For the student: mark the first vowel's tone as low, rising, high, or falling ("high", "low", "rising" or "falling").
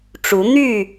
rising